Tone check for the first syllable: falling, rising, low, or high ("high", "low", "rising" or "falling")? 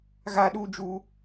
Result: high